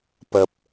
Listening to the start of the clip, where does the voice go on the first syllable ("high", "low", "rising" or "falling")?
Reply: low